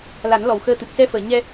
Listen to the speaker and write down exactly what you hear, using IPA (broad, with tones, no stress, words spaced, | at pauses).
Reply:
la˨˩˦nlɔ˨˩wxəː˧t̪ɨ˨˩p̚ sɛ˧fəː˨˩˨ ɲɛ˧